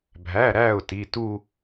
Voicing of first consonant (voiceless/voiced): voiced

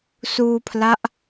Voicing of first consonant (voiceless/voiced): voiceless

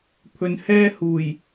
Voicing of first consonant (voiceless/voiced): voiceless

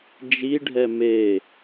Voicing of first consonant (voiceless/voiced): voiced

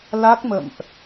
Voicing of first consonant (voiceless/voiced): voiced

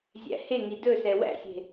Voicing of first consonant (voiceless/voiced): voiced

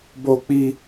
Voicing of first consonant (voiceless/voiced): voiced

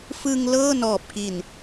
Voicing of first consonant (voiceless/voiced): voiceless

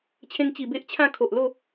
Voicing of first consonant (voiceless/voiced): voiceless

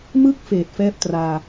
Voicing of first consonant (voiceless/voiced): voiced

